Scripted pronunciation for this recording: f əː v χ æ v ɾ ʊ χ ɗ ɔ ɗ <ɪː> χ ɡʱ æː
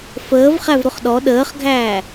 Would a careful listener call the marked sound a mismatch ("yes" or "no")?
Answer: yes